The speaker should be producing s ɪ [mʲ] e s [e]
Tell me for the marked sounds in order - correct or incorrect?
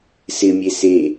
correct, correct

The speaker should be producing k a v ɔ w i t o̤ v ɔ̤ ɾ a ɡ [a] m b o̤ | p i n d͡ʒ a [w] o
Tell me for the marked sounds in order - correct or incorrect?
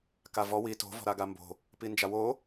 correct, correct

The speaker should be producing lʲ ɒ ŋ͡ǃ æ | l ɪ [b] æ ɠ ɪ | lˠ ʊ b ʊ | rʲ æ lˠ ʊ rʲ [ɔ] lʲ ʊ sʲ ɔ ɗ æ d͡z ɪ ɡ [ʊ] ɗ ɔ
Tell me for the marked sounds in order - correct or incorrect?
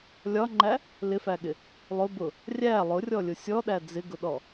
incorrect, correct, correct

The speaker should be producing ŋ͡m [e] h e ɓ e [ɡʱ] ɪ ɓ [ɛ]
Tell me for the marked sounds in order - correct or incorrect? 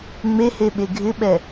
correct, correct, correct

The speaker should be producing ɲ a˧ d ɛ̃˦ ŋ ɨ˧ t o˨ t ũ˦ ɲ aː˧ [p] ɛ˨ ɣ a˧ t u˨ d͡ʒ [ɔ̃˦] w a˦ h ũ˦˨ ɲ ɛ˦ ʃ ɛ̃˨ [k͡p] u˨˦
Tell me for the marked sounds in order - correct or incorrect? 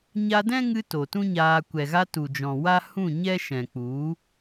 incorrect, incorrect, correct

